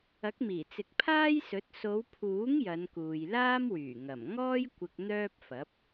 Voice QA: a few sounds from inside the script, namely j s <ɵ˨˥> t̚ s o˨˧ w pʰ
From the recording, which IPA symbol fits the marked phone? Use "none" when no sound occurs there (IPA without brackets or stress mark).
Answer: ɵ˨˥